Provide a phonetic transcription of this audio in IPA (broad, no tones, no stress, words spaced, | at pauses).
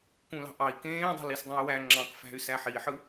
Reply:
kũlɑ̤ʔɑi̯ kẽːdˤe̤lis dˤũy̯wæ ŋ͡ǁɑ̃k fæ̤y̯sæħiħɯ